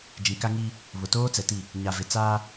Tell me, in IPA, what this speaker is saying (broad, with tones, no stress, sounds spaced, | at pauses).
d͡ʒ ĩ˨ k a˦ ŋ i˦ | β ʊ˨ t oː˦ t͡s ɛ˨ t i˦˨ | ɲ a˨ v ɪ˨ t͡s aː˦